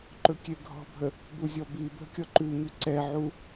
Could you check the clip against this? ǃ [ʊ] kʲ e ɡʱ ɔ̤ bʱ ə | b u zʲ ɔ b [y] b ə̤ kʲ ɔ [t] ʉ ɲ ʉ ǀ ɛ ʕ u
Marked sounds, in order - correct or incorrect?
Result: incorrect, incorrect, incorrect

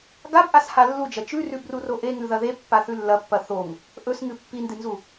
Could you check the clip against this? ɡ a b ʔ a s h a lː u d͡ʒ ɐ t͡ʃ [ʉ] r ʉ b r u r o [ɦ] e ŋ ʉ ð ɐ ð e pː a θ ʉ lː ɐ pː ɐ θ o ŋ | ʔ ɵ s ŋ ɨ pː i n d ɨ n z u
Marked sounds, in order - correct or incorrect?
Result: correct, incorrect

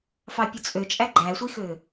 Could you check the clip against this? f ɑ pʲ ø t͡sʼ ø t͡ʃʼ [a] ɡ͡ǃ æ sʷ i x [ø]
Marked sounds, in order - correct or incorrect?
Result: incorrect, correct

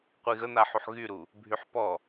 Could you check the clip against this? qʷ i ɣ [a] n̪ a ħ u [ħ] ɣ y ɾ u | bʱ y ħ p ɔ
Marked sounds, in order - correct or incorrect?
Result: incorrect, correct

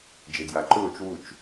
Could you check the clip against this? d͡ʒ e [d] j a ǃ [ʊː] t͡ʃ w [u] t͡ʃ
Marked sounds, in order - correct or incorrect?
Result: correct, correct, correct

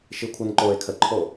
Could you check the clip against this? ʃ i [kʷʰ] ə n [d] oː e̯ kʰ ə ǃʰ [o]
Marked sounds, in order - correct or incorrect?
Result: correct, incorrect, correct

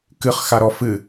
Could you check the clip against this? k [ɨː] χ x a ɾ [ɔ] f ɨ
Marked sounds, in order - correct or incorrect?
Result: incorrect, correct

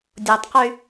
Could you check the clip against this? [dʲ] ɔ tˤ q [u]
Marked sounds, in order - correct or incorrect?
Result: correct, incorrect

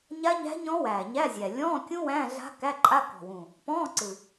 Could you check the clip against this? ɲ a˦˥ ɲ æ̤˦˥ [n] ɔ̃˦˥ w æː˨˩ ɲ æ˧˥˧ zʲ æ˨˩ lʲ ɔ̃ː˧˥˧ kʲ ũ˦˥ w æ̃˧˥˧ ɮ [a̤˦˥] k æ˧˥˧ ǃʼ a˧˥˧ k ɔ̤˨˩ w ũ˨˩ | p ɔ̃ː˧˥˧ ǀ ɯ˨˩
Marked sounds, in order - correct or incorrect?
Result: incorrect, correct

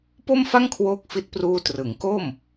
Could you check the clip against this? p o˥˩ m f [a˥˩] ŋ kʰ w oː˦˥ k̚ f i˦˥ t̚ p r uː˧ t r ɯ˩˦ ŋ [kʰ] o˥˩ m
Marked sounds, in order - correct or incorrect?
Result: correct, incorrect

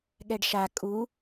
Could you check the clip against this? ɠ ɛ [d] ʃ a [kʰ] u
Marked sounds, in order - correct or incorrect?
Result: incorrect, incorrect

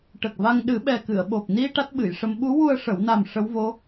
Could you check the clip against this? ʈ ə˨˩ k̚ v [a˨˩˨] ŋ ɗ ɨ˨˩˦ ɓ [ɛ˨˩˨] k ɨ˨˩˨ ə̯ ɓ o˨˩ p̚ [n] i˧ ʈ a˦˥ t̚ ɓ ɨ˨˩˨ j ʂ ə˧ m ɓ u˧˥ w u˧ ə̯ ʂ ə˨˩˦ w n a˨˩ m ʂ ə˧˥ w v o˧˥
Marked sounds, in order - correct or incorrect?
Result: incorrect, incorrect, correct

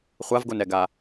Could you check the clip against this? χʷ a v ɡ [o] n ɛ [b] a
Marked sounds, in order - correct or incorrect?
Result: correct, incorrect

